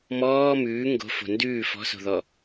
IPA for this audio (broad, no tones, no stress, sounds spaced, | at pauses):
m ɔː m ʉː ŋ ɡ o̤ f o̤ n d ʉː f ɔ̤ s o̤ ð ɔ